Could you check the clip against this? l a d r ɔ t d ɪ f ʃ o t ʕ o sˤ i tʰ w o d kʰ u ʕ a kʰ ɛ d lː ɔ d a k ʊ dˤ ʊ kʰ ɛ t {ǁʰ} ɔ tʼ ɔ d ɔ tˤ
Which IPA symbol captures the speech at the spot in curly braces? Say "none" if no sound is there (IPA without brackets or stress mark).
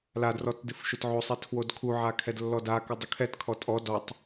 kʰ